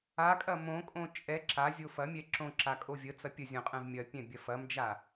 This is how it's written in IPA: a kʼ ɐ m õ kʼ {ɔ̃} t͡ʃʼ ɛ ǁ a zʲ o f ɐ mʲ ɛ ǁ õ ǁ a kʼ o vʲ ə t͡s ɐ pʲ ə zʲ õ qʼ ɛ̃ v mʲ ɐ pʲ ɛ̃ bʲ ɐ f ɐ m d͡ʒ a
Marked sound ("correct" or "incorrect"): incorrect